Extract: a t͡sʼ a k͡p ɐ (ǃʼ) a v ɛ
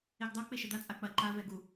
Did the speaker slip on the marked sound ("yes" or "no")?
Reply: yes